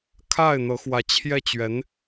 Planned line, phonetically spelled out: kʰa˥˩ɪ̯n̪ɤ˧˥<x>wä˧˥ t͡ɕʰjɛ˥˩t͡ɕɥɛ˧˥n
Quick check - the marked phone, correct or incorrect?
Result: correct